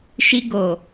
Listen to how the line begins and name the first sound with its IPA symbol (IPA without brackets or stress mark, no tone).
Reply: ʃ